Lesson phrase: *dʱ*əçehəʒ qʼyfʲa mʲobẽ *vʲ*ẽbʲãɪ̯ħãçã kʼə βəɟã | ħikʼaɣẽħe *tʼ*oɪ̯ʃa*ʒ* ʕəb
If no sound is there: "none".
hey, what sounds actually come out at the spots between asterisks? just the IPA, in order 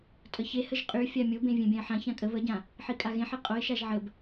tʼ, vʲ, qʼ, ʒ

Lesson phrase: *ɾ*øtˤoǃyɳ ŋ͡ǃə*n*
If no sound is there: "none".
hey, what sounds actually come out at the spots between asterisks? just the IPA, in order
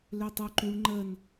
l, n

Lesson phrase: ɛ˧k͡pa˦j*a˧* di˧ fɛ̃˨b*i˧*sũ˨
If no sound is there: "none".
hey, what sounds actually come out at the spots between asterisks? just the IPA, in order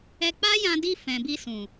ã˧, i˧

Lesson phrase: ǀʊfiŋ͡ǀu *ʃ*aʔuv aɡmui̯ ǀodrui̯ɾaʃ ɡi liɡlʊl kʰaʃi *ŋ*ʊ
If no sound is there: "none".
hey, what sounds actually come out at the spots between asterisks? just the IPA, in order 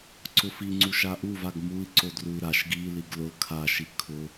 ʃ, kʰ

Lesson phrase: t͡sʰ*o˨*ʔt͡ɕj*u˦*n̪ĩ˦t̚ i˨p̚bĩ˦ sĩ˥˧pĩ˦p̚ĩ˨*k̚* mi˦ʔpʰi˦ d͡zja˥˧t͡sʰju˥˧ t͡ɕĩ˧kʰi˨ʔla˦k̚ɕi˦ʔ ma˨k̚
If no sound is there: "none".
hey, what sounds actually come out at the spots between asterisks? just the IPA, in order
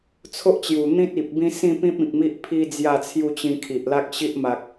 o˦, u˨˩, k̚

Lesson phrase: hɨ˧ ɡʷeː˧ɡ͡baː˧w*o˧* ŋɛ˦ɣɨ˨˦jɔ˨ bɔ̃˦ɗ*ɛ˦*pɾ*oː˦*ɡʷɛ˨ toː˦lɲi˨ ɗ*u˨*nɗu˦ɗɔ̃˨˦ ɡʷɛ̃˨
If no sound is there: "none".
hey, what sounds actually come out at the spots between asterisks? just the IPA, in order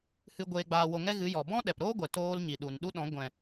o˧, ɛ˨, oː˦, u˨

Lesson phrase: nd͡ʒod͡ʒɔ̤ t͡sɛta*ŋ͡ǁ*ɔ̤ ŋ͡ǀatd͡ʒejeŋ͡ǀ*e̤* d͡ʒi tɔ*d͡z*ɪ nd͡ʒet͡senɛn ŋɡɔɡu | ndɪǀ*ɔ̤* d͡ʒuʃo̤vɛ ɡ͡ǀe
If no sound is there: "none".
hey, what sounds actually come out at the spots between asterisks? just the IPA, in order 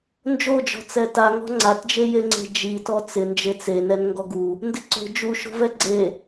ŋ, e̤, t͡s, o̤

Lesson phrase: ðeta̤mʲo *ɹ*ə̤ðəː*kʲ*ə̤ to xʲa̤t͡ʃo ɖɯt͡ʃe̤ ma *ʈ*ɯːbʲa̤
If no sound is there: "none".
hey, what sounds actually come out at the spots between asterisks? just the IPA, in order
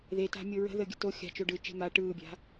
ɹ, ɡʲ, ʈ

